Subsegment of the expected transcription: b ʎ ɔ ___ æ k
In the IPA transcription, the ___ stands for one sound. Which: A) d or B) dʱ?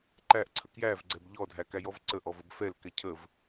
B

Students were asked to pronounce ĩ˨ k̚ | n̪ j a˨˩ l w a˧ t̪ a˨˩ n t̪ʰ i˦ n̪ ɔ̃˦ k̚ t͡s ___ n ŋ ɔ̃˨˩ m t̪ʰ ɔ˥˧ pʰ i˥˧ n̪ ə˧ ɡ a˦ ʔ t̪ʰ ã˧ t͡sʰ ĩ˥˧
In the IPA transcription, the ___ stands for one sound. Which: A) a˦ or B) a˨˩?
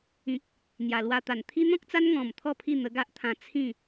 A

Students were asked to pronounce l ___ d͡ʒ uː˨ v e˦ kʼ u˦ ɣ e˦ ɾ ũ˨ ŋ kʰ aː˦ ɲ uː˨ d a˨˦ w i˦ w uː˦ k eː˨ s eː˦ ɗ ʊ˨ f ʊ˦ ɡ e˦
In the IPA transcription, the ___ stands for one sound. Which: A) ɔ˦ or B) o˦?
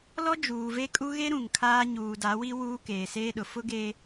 A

